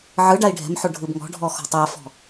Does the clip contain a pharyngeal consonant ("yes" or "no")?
yes